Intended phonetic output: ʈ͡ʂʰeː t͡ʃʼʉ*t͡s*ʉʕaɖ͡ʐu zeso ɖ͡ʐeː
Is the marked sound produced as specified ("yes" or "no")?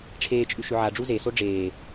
no